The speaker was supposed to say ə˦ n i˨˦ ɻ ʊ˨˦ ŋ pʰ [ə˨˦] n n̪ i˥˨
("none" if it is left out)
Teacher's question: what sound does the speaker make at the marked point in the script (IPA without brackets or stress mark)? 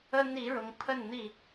ə˥˨